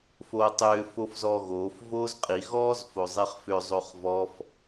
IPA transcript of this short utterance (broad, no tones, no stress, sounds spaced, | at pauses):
f oː tˤ ʏː f o f z ɔː ɣ oː f v oː z qʼ i ɣ ɔː z f o zˤ i χ f ʏ zˤ o χ v ɔ f